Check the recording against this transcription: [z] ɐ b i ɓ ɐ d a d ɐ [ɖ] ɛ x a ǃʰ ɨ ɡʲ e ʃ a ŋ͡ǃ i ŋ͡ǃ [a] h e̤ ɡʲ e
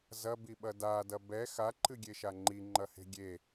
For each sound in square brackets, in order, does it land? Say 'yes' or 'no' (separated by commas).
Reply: yes, no, no